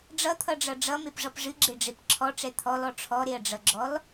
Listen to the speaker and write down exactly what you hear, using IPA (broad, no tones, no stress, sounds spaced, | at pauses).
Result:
ɖ͡ʐ ʌ t̪ʰ ʌ ɖ͡ʐ ʌ ɖ͡ʐ ʌ m e p ʐ ʌ p ʐ ɨ ɡ͡ǁ e ɖ͡ʐ e p ǁʰ ɔ ʈ͡ʂ ɛ t̪ʰ ɔ l ɔ ʈ͡ʂʰ ɔ ɾ e ɐ̯ ɖ͡ʐ ʌ ɡ͡ǁ ɔ l